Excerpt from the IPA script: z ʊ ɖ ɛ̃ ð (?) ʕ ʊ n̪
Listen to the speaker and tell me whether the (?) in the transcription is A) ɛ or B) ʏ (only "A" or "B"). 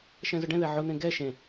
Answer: A